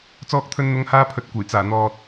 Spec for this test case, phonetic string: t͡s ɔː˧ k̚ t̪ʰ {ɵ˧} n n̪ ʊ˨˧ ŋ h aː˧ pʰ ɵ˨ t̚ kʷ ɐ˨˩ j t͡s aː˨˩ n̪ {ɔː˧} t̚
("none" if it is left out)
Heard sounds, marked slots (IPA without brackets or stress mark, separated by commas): ɵ˧, ɔː˨